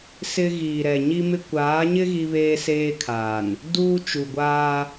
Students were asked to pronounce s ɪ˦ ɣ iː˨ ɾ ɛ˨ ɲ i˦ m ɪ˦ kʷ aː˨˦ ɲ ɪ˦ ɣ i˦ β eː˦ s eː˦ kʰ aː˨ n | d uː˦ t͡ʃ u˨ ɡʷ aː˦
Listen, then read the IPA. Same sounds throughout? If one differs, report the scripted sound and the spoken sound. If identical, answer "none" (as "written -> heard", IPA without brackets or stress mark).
none